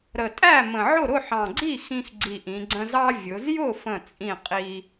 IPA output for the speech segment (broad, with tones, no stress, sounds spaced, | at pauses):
ɾ ə˨˩ tʼ æ˥˩ m ə̃˨˩ ʕ ʊ˥˩ ɾ ʊ˥˩ ħ ɑ̃˨˩ ɡ͡ǀ i˥˩ x ĩ˧ x ɡ͡ǀ i˨˩ ʔ ĩ˩˧ ɡ͡ǀ ə̃˧ z ɑ˧ vʲ ʊ˩˧ z j ʊ˥˩ f ə̃˥˩ t͡sʼ ĩ˥˩ qʼ i˧